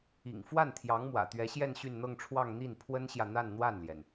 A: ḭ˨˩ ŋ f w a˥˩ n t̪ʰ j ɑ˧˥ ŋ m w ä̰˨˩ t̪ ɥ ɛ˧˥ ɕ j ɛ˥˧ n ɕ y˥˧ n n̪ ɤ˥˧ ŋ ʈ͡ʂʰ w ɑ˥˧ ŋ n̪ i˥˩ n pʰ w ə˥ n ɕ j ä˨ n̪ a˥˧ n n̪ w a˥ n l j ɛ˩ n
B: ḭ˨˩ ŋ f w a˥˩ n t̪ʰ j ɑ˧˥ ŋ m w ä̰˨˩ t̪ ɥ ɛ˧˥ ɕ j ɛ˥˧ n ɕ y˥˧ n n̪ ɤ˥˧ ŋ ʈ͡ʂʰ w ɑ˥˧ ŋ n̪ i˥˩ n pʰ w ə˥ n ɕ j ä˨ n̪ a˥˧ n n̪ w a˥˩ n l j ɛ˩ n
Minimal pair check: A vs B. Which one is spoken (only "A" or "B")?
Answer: B